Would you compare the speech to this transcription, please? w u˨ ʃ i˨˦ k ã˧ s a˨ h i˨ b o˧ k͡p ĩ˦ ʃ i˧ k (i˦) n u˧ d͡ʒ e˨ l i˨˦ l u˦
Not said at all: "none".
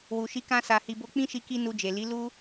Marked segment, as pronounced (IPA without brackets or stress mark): i˦